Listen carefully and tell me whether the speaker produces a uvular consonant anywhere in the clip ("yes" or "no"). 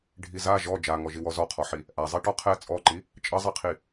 yes